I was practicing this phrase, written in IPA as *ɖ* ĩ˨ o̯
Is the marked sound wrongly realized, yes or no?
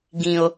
yes